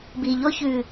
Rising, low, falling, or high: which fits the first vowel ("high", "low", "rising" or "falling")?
low